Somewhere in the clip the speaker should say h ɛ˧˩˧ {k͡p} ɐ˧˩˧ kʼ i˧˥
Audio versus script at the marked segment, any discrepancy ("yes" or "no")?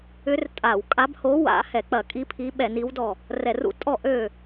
no